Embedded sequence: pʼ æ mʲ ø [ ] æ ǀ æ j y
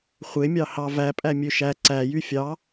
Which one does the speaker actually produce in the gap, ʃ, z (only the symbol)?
ʃ